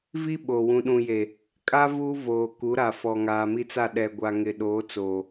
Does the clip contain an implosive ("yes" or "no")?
yes